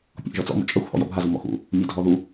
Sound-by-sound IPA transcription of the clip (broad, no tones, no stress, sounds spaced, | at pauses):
pʲ ɔ̰ ʔ ʒ ɔ t͡s ɔ̰ m ṵ t͡ʃʼ ɜ xʷ h ɔ̰ j ɔ̰ bʱ a z u m ɔ̰ x ṵ | mʲ ɜ dʱ ɔ ð u